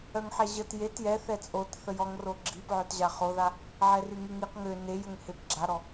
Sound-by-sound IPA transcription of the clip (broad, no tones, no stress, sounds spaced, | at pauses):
œ ŋ ħ ɛ ʑ ə t j e t j ɛ θ ɛ t͡sʼ o t θ ə j ɔ ŋ r o ɡ͡ǁ i p ʕ œ t ʑ a χ o ð a | ʕ ɛ r y ŋ i ŋ i q ŋ ø n e j ə ŋ h e p ɡ͡ǁ a ɾ ɔ